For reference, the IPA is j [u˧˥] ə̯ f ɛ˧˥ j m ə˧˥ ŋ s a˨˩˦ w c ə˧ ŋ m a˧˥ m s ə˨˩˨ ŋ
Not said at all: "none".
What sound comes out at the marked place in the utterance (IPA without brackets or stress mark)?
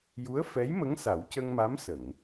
u˧˥